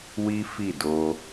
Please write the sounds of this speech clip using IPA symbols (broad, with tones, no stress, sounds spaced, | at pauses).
w i˦ f i˦˨ d o˧